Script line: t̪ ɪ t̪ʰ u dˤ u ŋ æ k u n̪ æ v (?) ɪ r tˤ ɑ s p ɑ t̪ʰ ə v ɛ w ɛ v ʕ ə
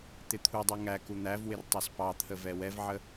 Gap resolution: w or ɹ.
w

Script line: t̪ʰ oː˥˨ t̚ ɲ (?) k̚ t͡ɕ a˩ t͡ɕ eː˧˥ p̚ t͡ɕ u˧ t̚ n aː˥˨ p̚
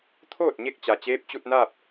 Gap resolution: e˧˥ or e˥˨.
e˥˨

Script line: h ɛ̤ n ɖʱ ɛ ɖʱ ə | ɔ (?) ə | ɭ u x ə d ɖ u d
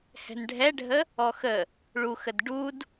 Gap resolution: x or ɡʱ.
x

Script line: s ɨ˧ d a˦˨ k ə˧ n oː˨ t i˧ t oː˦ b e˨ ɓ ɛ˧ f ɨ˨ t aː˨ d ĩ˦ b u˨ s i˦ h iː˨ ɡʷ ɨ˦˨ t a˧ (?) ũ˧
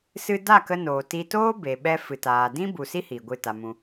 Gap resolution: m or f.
m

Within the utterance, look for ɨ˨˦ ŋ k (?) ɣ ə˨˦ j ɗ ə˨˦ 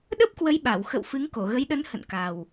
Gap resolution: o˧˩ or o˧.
o˧˩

